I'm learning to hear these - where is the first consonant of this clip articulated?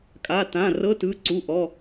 velum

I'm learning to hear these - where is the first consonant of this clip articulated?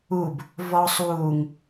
lips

